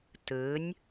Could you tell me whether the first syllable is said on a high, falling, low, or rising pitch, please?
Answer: rising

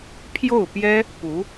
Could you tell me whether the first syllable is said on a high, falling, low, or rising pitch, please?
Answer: falling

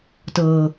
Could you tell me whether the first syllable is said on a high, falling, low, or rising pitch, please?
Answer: low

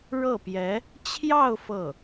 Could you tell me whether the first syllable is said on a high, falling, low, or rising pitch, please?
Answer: falling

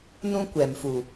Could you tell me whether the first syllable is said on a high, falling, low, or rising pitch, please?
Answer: high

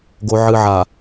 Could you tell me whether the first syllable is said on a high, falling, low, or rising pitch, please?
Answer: low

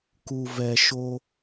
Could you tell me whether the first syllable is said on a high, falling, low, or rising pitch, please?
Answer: low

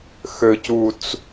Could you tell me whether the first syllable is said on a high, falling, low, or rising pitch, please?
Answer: low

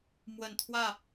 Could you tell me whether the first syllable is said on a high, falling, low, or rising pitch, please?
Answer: low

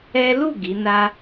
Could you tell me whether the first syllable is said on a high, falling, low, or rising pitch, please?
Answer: high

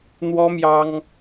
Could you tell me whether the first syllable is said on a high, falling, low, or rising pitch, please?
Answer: high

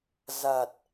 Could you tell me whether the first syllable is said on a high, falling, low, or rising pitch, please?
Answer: low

